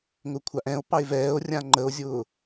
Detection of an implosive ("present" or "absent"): absent